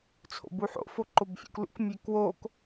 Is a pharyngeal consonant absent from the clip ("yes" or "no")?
no